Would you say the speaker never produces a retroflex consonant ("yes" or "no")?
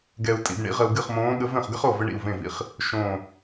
no